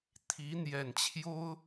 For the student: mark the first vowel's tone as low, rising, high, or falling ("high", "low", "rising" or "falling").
rising